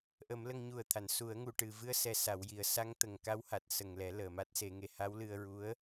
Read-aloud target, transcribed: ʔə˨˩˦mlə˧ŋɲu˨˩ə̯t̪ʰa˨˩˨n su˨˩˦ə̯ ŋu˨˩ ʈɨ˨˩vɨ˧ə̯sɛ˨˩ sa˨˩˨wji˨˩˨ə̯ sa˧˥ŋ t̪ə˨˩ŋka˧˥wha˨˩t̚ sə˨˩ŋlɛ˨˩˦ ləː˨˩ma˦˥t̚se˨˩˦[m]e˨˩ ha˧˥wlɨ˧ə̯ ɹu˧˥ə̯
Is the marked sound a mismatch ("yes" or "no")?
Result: yes